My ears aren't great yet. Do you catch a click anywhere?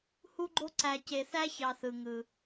yes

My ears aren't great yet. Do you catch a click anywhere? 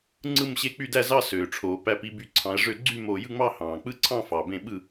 yes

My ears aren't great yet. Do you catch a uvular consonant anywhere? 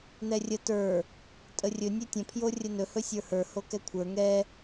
no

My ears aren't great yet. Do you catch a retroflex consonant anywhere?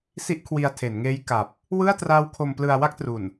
no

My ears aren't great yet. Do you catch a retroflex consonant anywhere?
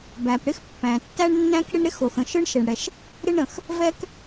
yes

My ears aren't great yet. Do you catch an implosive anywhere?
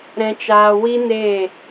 no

